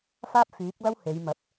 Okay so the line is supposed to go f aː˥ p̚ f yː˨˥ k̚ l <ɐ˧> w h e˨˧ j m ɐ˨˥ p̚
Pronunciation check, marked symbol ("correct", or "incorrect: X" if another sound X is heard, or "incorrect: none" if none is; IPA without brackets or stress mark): incorrect: ɐ˥